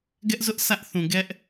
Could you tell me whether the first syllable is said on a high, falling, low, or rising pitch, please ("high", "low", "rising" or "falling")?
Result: high